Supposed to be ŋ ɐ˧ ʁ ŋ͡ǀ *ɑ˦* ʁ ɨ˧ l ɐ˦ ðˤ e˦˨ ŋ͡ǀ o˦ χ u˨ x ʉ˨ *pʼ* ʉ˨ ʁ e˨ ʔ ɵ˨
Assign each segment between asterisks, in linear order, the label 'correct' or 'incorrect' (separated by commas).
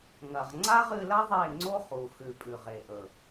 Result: incorrect, correct